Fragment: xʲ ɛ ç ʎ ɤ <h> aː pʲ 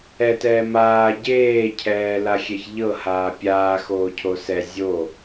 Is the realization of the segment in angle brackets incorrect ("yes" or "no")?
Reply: no